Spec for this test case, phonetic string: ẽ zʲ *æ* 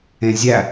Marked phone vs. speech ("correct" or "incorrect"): correct